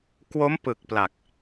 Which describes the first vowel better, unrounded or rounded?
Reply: rounded